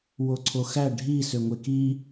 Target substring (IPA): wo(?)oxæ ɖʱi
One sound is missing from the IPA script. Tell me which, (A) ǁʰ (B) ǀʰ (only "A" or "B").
B